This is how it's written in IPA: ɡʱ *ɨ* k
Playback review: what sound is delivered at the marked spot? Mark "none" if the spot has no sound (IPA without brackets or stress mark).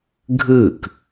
ɨ